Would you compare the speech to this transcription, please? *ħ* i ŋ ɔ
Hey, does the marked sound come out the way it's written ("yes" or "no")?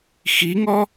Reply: no